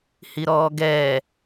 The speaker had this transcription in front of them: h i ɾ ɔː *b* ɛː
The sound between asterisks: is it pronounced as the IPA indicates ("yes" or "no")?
no